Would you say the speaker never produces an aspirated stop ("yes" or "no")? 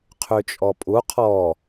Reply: no